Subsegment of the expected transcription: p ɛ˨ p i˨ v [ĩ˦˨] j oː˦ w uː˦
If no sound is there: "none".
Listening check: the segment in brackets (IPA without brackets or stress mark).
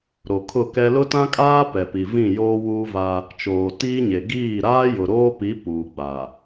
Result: ĩ˦˨